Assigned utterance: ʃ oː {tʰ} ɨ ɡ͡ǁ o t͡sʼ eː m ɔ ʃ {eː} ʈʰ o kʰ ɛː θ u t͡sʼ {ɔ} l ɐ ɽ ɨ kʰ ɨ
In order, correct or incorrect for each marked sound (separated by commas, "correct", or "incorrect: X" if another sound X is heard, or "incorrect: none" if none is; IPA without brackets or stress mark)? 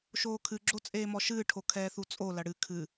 incorrect: kʰ, incorrect: ɨː, incorrect: o